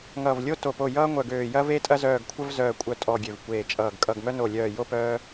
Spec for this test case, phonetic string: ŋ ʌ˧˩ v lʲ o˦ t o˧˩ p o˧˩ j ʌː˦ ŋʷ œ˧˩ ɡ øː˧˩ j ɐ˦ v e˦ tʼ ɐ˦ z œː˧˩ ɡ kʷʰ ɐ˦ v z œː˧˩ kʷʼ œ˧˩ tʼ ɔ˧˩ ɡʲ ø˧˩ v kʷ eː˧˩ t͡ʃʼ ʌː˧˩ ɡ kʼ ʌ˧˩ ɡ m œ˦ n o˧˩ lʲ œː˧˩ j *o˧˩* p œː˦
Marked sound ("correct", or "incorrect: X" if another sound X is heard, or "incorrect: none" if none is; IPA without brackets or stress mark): incorrect: o˦